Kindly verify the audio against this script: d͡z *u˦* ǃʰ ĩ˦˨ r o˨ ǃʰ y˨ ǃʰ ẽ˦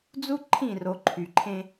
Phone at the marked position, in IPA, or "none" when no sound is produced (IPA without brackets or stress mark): u˦